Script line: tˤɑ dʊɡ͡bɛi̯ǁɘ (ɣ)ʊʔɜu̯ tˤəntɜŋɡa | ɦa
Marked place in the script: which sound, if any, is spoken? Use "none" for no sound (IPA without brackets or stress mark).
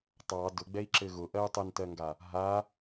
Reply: ɣ